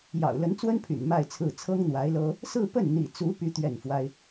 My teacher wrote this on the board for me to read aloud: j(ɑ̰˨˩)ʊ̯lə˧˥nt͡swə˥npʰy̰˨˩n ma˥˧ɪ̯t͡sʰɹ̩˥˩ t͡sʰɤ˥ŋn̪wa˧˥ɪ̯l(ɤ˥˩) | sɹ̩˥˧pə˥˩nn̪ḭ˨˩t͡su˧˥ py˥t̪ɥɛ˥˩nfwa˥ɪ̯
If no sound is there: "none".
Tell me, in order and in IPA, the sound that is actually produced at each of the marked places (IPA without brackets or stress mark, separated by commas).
ɑ̰˨˩, ɤ˥